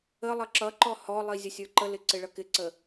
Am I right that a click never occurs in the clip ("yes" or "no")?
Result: no